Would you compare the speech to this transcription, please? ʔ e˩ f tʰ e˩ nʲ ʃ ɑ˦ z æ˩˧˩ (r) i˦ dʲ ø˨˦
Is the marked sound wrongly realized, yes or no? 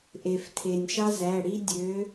yes